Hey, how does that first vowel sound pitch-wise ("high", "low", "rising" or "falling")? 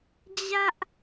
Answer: high